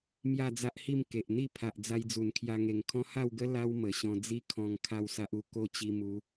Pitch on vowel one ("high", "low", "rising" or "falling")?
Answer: falling